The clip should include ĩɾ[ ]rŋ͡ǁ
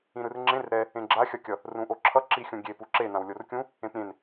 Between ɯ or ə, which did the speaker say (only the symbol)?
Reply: ɯ